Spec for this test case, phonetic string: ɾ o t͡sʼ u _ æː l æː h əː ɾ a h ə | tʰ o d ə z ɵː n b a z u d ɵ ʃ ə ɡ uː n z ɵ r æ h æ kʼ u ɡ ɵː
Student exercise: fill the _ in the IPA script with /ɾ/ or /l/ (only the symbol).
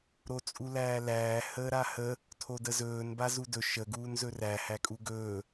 l